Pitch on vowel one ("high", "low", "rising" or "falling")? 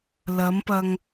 rising